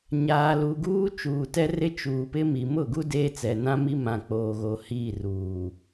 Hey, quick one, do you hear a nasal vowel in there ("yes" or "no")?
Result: yes